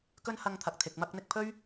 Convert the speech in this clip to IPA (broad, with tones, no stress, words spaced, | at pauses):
kɵ˥nhɐ˧ŋt̪ʰɐ˨k̚t̪ʰɪ˨k̚ mɐ˧k̚n̪ɪ˧k̚pʰɵ˥ɥ